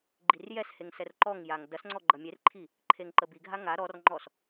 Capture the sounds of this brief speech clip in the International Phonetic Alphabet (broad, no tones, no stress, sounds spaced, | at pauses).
ɡ͡ǃ i r j ɛ s h e ŋ s ɛ r ǃ ɔ ŋ j a ŋ d ɐ s ŋ͡ǀ ɔ ɡ͡ǃ ɐ mʲ e r ǃʰ i | ǃʰ e ŋ ǃ ə b i ɡʱ a ŋ a ɾ ɔ r ŋ͡ǃ ɔ s